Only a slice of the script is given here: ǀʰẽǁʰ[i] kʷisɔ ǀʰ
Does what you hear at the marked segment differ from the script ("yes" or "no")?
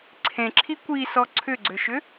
no